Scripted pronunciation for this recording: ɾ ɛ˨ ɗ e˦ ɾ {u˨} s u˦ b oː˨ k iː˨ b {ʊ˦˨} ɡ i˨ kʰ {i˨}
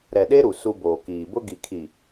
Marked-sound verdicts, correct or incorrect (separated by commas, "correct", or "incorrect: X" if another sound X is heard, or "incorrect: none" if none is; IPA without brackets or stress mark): correct, incorrect: ʊ˦, correct